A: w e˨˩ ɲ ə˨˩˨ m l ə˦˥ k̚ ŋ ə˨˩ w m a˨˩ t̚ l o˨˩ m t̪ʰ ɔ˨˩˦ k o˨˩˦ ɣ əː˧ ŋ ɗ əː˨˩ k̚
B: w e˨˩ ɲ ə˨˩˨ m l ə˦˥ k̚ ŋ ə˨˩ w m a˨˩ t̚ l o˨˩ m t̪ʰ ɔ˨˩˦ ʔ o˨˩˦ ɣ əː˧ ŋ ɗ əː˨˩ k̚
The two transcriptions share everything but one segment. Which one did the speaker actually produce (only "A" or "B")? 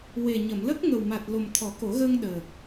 A